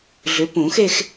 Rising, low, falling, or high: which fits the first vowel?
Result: rising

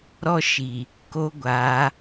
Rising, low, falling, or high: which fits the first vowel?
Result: high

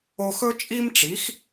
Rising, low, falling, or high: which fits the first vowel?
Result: high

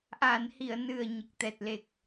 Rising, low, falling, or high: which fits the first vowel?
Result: low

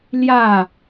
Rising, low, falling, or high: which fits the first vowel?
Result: falling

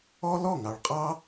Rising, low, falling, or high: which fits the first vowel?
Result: high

